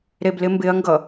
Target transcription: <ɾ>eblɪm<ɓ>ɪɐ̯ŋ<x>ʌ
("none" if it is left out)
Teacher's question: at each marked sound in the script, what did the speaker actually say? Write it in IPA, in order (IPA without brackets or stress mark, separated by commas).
ɾ, b, ɡ